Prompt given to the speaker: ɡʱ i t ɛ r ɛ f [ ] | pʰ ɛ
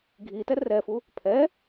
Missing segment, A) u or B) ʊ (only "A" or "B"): A